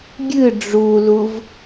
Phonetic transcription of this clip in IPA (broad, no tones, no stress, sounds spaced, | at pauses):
ɡʲ ɨ ɖ͡ʐ u l u v